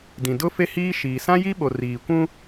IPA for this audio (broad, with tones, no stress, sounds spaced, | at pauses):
d ĩ˨ d ʊ˦ f e˦ h iː˦ ʃ iː˨ s ã˦ j i˦ ɓ o˨ r iː˨ kʷ ũ˦